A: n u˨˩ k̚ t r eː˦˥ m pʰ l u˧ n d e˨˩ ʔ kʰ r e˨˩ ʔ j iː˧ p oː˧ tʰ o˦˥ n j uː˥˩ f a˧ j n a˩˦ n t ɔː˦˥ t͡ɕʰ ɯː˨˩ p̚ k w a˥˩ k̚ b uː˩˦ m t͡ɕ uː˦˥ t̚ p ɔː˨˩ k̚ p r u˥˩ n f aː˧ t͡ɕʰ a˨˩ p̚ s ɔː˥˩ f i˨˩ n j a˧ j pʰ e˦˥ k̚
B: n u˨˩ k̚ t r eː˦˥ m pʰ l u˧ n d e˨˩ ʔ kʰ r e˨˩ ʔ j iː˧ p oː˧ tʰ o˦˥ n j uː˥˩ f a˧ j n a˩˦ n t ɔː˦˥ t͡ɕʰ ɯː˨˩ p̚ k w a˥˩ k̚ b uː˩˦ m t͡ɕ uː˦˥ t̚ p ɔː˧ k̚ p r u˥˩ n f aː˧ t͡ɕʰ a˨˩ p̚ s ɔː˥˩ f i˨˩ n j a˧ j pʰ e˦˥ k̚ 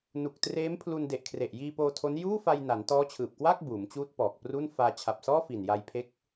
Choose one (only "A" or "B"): A